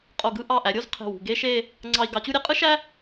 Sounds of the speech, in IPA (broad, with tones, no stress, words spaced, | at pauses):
qʼo˧˩ɡɯ˥˧ ʔɑ˧˩ʔæ˩˧ɾʲo˥˧z qʰe̤˧˩wṳ˧˩ɡe˥ʃe˥˧ | ŋ͡ǀɑ˧i̯ ɡɑ˩˧t͡ɕu˧ ɾʲe˥qʼɯ˥ʃæ˥